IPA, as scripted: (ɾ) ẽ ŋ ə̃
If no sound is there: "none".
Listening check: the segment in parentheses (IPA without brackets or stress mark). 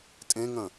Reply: tʼ